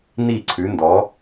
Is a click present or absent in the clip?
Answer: present